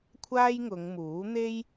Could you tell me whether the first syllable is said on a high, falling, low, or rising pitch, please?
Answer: high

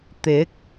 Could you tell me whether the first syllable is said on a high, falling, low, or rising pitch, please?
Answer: rising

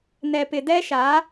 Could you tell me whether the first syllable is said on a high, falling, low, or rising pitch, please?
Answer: low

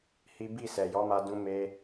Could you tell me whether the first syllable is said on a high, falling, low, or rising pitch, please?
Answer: high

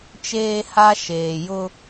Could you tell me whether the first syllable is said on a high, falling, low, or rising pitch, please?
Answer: high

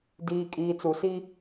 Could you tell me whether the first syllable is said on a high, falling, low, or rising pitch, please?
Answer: low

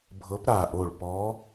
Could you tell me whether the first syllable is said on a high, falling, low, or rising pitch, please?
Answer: rising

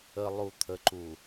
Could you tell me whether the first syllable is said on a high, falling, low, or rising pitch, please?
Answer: low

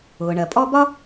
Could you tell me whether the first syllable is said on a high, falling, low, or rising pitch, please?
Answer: low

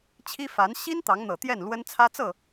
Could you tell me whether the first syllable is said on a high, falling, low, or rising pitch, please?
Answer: high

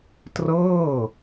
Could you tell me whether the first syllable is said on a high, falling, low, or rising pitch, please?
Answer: falling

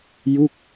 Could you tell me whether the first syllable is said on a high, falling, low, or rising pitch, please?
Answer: falling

